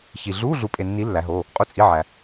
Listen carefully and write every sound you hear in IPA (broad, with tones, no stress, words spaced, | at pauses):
çi˨ ɮu˧˥˧ ɮu˨˦pʼe˨nːi˨˦ lːæ˨˦ɦo˧˥˧ | qʼu˦˨t͡sʼi˧˥˧ʕæ˨